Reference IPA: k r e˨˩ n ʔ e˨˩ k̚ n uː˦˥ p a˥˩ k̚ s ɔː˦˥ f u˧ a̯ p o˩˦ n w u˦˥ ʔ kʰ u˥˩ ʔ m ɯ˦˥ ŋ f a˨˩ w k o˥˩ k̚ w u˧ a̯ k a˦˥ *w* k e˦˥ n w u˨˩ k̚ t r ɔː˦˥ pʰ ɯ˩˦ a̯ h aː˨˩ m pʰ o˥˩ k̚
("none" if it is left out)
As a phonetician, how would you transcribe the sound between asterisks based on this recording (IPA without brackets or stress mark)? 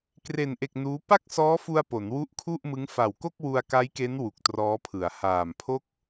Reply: j